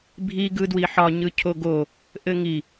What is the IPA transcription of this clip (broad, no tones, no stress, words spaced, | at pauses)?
bʱi ɡɯdwiħɒ ɲɯcʰoɡo | ʔɘŋi